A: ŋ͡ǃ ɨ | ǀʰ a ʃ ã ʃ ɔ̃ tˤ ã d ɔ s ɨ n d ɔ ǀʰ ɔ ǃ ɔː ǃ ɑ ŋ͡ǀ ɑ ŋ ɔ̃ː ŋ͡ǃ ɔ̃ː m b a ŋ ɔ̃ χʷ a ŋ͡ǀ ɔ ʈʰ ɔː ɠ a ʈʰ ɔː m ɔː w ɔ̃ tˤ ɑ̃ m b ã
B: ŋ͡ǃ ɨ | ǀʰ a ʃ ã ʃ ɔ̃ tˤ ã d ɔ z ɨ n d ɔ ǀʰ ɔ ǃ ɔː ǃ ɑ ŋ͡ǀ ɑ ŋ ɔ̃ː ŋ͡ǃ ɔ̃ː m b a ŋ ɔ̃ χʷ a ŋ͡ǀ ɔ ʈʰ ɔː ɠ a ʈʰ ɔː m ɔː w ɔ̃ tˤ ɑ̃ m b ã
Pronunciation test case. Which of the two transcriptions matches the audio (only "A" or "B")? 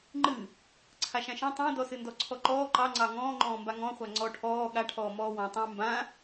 A